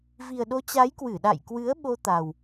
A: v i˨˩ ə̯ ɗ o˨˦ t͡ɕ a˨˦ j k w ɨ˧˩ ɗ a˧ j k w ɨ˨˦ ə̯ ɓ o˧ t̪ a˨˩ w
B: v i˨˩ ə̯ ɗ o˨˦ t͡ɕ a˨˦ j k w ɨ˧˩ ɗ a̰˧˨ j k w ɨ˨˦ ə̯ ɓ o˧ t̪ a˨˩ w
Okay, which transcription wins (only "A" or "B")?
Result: B